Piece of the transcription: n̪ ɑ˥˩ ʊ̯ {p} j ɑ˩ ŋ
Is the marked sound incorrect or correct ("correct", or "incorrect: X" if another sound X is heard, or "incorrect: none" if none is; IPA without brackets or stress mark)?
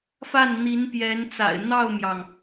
incorrect: m